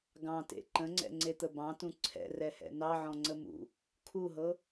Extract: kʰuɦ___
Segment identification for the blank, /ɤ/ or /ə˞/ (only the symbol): ɤ